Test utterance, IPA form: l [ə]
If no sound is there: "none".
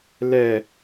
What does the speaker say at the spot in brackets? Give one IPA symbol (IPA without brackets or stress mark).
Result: ɛ